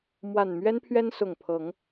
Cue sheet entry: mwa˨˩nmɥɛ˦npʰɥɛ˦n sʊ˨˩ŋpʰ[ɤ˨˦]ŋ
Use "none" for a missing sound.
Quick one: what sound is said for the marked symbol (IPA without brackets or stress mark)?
ɤ˨˦